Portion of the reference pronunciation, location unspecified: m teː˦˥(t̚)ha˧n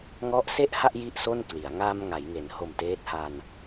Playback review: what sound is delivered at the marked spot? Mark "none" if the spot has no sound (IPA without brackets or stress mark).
t̚